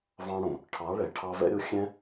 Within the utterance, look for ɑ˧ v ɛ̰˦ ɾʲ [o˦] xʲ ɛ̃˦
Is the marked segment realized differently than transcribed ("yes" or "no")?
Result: no